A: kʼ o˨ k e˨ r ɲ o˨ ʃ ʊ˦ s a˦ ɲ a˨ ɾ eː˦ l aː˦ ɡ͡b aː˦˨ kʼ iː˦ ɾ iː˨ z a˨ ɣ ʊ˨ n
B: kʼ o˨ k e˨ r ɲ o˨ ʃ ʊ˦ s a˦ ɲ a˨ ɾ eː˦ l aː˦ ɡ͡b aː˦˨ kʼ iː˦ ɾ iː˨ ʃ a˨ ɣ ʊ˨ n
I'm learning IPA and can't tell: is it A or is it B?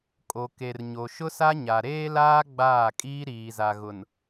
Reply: A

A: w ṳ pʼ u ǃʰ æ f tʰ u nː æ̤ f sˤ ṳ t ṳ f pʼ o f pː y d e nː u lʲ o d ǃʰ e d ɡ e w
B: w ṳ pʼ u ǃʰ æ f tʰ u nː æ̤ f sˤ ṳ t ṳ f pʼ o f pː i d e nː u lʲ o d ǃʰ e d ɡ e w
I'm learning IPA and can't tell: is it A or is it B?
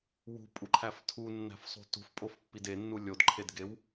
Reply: B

